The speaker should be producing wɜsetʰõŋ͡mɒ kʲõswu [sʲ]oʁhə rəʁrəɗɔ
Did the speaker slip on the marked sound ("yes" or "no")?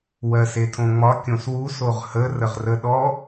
yes